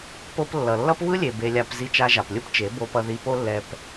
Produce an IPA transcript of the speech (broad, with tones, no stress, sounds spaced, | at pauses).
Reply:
p o˦ p lː ʌ˨ lː ʌ˦ p β ɯ˦ lʲ e˨ b e˧ lʲ a˧ p z i˧ t͡ʃ a˧ ʒ a˨ p lʲ ɯ˦ p t͡ʃ e˨˦ b o˧ p ʌ˧ ð i˧ p o˦ lː ɛ˧ p